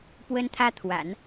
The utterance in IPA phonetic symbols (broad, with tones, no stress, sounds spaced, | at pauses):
p w ə˥ n t̪ʰ ä˥ t̪ʰ w a̰˨˩˦ n